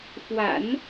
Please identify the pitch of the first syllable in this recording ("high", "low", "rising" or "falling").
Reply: low